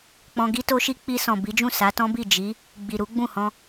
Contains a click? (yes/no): no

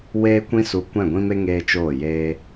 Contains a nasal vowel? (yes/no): yes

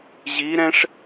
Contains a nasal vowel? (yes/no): yes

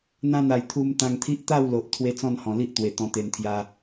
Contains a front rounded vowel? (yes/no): no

